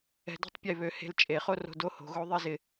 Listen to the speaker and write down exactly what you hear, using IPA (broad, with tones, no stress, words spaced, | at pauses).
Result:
ɛ̤˧dɛ̤˦tˤpʲe˦˨ βø˨ he̤˧lt͡ʃʼe˨ χo˦ro̤˧do˧ ho̤˨ɣo˦ðˤi˦zɪ˧